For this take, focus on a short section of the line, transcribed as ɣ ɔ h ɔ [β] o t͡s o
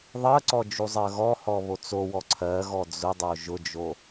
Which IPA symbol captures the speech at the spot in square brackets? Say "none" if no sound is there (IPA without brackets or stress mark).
β